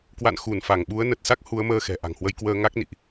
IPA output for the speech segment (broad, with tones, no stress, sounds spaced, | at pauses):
k w a̰˧˨ n x u˧˩ n f a˧˩ ŋ ɓ u˨˦ ə̯ n ə˨˩ t̚ s a˦˥ k̚ h u˨˦ ə̯ m əː˧ x ɛ̤˨˩ ʔ a̤˨˩ ŋ h w ə˧ j k w əː˧ ŋ a˦˥ k̚ n ḭ˧˨ ʔ